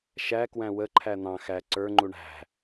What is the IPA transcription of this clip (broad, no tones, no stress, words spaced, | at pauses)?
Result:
ʃækwæ̃ wəǃʰæ n̪ɑ̃ xæ ǀə˞ŋ͡ǃu ɳæ̤